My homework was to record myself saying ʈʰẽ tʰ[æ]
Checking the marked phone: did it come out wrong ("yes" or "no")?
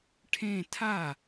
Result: yes